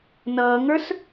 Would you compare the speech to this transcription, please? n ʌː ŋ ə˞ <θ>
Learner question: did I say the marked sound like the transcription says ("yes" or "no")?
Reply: no